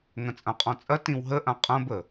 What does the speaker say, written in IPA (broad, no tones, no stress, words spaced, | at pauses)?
ŋɐ̃t͡sʼãqʼɔ̃t͡sʼɐ tĩwɦəʔã qʼɐ̃bə